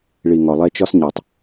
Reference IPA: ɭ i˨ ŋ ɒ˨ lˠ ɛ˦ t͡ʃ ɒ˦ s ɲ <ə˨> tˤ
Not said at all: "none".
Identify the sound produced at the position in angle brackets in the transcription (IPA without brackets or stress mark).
ɑ˨